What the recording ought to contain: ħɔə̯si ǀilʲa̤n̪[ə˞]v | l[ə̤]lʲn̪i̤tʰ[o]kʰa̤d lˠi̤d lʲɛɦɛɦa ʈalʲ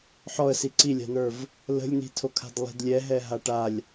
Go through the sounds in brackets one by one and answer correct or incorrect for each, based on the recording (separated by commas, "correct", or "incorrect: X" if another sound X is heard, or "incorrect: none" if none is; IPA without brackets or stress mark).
correct, correct, correct